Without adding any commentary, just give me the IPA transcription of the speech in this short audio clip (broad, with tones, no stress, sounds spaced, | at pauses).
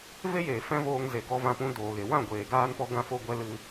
v e˦ j eː˨ f ɛ̃˦ v oː˧ ŋ z e˨ ɡ ɔ˧ v ã˧ p ũ˧ d oː˨ ɣ e˨ w ã˦˨ ɡʷ eː˨ ɡ aː˦ n p ɔ˦ ɡ ã˧ f o˧ ɡʷ ɛ˧ l ɨ˧